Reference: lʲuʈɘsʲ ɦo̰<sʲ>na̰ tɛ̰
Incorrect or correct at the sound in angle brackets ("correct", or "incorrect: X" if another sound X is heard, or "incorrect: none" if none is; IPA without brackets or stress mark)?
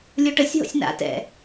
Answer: correct